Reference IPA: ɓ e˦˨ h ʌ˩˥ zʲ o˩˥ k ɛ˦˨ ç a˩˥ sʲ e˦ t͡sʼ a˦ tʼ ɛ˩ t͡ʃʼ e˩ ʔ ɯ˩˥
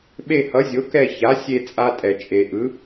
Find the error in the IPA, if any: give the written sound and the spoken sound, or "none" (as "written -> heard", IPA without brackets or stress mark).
none